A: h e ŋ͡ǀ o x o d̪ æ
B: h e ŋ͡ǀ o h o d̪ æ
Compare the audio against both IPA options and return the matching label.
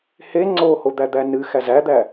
B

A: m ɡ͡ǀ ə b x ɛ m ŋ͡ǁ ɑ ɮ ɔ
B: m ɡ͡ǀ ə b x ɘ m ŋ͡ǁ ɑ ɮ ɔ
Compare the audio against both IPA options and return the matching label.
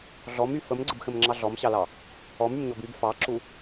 B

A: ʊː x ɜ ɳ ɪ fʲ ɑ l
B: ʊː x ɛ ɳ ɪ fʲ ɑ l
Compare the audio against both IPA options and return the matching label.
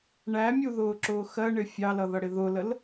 A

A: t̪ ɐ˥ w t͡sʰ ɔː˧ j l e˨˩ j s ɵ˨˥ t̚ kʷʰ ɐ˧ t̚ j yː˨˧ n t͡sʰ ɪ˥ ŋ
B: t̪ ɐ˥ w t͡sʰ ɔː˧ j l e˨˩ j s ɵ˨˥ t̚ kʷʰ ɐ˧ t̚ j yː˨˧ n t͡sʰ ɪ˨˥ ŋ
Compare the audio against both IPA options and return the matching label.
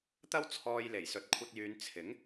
B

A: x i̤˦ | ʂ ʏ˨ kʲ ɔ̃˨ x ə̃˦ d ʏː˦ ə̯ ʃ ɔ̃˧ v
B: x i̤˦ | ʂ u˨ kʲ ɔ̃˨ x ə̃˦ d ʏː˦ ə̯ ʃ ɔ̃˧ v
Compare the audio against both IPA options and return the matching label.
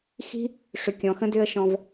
A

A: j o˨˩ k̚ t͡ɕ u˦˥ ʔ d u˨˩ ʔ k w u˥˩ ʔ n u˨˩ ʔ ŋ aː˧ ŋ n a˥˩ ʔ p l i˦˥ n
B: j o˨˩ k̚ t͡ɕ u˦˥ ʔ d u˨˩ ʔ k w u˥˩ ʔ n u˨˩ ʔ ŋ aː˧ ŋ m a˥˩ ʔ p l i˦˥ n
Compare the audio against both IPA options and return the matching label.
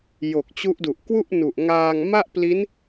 B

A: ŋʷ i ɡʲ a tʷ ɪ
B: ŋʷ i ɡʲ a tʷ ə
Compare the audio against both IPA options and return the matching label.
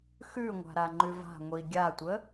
B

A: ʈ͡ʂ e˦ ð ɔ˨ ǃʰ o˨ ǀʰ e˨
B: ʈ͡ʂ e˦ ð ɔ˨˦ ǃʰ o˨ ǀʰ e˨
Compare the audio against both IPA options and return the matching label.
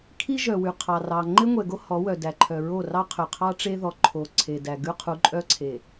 A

